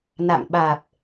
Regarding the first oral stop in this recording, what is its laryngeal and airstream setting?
implosive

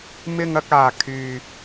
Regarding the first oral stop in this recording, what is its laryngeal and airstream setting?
plain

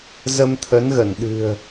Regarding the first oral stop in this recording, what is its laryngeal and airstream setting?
aspirated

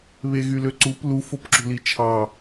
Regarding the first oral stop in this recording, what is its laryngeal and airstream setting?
click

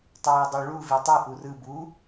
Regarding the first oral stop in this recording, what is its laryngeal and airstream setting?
plain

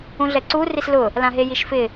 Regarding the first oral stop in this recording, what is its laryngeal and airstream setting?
click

